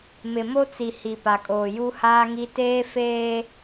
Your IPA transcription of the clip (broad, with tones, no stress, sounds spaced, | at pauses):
m ɪ˨ m o˦ t͡s i˨ h i˨ p a˨ kʼ oː˨ j u˦ h aː˦ ŋ i˦ t eː˦ f eː˦